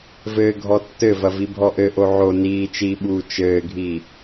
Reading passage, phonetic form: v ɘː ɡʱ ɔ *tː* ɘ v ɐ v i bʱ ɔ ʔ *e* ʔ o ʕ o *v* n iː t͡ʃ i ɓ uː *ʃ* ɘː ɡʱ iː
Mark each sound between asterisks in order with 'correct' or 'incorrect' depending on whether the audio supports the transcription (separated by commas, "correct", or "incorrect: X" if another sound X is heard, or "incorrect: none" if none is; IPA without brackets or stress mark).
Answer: correct, incorrect: ɘ, incorrect: none, incorrect: t͡ʃ